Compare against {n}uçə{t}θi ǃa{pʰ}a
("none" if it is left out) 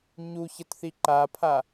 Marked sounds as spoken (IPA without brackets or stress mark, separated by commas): ɲ, t, pʰ